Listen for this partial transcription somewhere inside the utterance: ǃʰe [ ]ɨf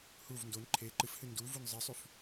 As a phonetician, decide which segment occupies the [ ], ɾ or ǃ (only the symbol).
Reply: ǃ